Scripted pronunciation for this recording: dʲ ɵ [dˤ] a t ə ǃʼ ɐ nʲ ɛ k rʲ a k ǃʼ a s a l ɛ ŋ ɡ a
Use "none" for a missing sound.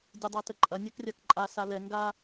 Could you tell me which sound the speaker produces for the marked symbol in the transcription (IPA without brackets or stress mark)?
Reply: dˤ